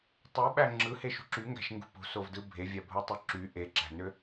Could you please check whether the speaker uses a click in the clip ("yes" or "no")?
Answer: yes